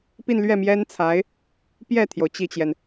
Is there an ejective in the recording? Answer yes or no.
no